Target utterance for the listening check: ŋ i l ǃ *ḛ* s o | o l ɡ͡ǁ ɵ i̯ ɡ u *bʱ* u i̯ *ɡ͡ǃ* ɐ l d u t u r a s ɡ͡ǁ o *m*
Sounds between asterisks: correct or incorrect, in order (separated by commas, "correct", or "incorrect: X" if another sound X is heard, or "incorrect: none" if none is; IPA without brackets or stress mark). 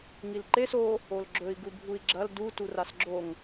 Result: incorrect: e, correct, incorrect: ɡ͡ǁ, incorrect: ŋ